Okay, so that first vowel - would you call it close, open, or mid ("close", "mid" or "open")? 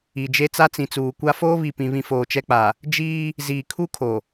close